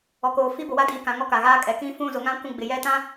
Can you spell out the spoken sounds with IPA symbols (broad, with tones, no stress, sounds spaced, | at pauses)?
ɔ˨ k oː˨ f i˦ b ʊ˨ w a˦ d iː˨ k ã˨ ŋ ɔ˦ k a˨ ɣ aː˦ kʼ ɛ˨˦ k ĩ˦ f ũ˦˨ z ʊ˨˦ ŋ ã˦ kʷ ũ˦˨ ɡ͡b ɪ˨ j ɛ˦ t ã˦